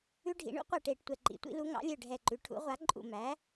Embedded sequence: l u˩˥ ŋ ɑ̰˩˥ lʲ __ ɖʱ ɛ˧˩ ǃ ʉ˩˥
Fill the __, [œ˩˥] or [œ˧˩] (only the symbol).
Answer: œ˧˩